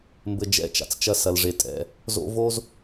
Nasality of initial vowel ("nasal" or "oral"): oral